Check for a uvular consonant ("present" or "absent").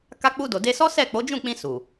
absent